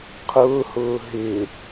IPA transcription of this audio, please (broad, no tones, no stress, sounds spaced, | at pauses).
qʰ ʊː h ʊː ɦ ɪː